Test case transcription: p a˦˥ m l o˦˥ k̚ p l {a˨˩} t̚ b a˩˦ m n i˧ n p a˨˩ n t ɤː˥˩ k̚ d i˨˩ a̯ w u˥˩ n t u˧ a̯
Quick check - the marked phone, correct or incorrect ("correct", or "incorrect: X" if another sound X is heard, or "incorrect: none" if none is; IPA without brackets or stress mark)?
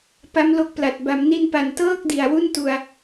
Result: correct